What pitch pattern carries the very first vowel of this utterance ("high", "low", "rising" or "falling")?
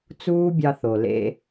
high